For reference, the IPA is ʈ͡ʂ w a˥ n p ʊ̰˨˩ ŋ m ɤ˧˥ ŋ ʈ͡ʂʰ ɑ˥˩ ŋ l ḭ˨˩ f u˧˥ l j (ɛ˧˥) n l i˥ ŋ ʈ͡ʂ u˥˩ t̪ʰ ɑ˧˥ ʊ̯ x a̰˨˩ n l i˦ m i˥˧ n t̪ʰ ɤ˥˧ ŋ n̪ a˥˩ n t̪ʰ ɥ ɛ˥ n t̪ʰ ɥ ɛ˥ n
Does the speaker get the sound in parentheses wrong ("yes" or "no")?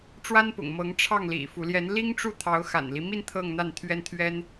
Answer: no